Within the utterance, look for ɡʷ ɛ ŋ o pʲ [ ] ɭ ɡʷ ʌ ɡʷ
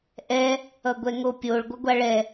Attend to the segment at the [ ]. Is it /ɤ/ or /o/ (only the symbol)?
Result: o